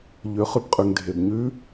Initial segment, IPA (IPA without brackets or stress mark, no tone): ʎ